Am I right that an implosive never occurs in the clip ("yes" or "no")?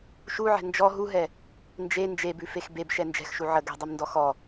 yes